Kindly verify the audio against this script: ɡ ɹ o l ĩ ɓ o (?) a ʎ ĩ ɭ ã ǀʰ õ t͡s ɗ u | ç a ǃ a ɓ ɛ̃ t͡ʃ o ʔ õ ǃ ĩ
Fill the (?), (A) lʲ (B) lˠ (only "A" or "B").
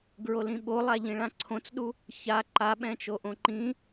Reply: B